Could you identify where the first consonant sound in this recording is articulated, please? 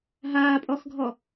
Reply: glottal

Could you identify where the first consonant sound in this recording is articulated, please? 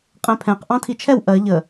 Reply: uvular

